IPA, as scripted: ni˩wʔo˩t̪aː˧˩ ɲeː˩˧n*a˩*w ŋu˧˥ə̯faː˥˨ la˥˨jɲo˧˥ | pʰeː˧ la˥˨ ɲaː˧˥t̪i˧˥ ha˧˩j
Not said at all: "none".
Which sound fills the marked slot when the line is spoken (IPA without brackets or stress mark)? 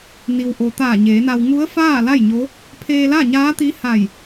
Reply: a˧